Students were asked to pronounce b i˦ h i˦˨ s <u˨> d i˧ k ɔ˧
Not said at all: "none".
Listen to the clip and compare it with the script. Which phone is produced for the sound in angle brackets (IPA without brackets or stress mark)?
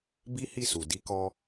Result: u˨